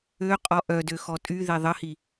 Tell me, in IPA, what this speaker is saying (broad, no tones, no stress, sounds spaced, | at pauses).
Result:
ø qʼ ɔ ʔ œ d ø x ɔ tʼ y ð e ðˤ ə h i